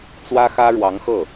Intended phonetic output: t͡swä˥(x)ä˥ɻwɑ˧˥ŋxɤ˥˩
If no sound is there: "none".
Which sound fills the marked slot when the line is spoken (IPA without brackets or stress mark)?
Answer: x